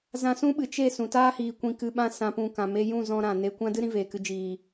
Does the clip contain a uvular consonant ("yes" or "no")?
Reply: no